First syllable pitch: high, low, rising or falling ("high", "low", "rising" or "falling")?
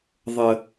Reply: low